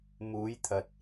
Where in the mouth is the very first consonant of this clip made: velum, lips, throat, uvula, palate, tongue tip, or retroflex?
lips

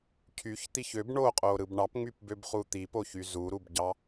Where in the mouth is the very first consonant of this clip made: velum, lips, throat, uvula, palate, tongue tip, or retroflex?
palate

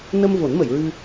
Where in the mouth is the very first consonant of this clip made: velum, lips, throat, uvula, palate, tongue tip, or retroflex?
tongue tip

